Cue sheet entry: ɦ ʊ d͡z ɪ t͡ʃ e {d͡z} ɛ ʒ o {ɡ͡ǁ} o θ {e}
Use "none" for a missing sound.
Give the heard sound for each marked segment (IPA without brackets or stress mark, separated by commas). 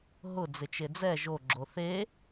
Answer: d͡z, ɡ͡ǁ, e